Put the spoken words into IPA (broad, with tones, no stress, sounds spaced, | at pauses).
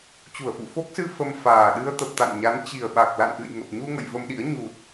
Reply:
t͡ɕ u˧˩ ə̯ f ṵ˧˨ f o˦˥ k̚ s ɨ˧ f ə˧ m f aː˨˩ ɗ ɨ˧ ə̯ t̪ ə˨˩ p̚ t̪ a̰˧˨ n ɲ a˨˦ n t͡ɕ i˨˩ ə̯ ɓ a˨˩ k̚ l a̰˧˨ n ʔ ɨ̰˧˨ j ŋ ə˨˩ p̚ ɲ u˧ ŋ ə̰˧˨ j v ə˧ m ɗ ḭ˧˥ ə̯ ɲ u˨˩ t̚